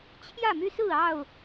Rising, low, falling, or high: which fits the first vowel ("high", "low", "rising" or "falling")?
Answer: falling